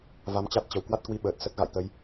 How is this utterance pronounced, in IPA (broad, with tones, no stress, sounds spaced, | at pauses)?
v a˧ m t͡ɕ a˦˥ t̚ t͡ɕ ə˨˩ w k w a˦˥ t̚ k w i˧ ɓ əː˨˩ t̚ s ə˦˥ t̚ ɣ a̰˧˨ j t̪ ə˧ j